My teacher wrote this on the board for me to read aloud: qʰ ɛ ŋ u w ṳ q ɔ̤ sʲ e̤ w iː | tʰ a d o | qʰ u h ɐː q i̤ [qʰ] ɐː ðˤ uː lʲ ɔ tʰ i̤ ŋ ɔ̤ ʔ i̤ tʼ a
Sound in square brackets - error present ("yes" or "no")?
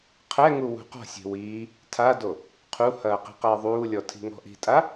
yes